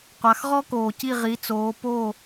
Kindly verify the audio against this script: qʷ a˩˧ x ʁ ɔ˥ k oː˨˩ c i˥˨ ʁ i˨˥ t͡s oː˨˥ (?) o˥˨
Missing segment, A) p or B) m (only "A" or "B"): A